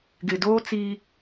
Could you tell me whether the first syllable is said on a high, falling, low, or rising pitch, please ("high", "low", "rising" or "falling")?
low